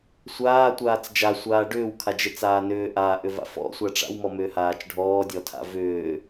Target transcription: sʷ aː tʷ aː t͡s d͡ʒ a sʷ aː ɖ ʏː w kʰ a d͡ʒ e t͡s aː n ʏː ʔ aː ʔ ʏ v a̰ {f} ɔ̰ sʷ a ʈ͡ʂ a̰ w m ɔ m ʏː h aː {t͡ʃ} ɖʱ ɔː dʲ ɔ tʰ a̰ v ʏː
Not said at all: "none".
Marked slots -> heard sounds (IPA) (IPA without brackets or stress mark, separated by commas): f, t͡ʃ